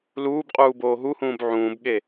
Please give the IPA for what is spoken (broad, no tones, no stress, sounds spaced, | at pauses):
l uː b qʼ uː b oː ɦ u h ũː b ʕ ũː b ɠ e